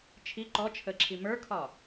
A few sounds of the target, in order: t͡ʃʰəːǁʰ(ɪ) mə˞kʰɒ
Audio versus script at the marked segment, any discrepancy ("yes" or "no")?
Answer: yes